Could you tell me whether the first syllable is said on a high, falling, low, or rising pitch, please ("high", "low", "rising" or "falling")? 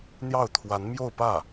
falling